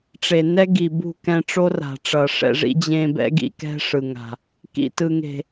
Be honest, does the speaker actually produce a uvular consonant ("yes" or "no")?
no